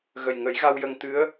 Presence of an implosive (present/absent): absent